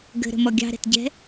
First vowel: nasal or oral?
oral